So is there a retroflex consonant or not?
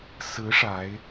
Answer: yes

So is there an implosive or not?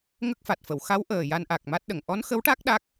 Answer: yes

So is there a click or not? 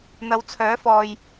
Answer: no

